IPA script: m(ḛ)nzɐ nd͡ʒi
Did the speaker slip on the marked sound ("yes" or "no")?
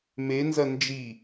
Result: yes